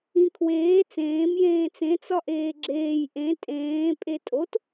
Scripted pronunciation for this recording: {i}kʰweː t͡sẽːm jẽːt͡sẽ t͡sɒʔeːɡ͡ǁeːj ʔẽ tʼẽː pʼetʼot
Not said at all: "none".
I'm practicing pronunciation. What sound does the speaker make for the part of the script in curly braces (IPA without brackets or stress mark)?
ĩ